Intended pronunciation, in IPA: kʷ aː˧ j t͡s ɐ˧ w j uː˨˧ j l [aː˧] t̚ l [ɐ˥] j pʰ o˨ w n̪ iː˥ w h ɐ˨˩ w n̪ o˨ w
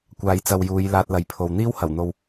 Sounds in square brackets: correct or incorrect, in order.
correct, incorrect: ɐ˨˥

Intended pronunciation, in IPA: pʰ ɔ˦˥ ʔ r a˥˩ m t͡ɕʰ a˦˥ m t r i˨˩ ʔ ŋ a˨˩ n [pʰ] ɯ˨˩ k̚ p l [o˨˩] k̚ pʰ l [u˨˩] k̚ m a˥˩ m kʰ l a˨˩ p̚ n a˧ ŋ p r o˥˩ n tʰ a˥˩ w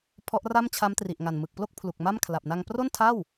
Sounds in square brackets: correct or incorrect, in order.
incorrect: m, incorrect: o˥˩, correct

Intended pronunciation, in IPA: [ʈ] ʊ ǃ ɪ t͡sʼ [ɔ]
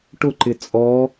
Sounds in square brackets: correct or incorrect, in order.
correct, correct

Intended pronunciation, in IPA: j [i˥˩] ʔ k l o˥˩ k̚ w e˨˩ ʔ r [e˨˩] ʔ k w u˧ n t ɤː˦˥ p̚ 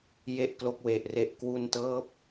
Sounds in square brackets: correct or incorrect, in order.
incorrect: e˥˩, correct

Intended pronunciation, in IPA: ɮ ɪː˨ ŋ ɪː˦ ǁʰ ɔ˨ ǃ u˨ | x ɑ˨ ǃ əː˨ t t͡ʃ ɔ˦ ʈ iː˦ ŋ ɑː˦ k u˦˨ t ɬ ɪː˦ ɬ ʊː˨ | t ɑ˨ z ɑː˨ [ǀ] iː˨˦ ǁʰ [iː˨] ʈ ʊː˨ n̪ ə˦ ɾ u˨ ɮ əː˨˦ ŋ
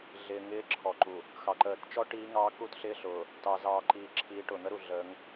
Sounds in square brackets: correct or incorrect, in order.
incorrect: ǃ, incorrect: iː˨˦

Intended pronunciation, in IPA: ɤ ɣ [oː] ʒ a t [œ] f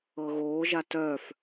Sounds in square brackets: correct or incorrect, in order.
correct, correct

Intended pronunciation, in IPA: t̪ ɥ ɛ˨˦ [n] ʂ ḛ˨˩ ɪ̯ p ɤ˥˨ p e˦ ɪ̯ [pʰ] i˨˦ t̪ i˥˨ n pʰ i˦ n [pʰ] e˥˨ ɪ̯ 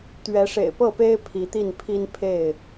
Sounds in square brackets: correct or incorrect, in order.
incorrect: none, correct, correct

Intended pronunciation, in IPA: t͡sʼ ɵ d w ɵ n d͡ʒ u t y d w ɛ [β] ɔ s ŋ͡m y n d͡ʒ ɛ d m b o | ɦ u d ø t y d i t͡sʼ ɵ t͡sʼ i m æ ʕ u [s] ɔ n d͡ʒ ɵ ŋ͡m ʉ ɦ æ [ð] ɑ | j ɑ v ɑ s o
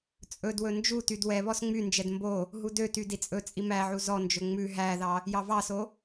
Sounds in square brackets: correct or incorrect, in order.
correct, incorrect: z, correct

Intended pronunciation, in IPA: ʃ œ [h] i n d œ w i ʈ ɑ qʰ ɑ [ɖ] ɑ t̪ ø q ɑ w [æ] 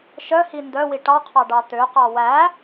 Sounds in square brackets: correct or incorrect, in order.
correct, correct, correct

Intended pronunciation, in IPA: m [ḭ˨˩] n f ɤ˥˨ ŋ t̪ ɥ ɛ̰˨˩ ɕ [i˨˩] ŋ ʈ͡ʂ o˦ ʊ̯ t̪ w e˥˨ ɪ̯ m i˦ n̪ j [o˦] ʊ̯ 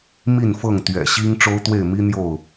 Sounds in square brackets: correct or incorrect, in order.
incorrect: i˥˨, incorrect: i˦, incorrect: o˥˨

